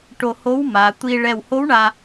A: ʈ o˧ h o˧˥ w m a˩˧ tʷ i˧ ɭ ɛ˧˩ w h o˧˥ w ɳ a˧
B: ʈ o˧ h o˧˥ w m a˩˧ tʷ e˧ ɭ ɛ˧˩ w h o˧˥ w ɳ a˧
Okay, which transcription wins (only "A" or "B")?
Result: A